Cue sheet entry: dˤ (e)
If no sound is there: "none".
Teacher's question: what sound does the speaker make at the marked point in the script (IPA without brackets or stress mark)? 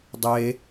e